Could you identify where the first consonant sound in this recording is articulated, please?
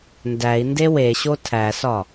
alveolar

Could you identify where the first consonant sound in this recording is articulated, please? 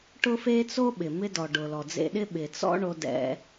retroflex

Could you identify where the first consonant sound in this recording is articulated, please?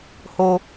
glottal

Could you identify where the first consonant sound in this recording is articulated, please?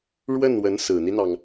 retroflex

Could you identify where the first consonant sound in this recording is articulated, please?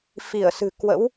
labial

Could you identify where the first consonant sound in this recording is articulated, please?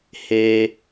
glottal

